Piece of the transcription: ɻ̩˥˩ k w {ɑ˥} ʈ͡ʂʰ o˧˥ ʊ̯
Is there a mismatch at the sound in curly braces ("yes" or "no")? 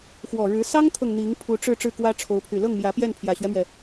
yes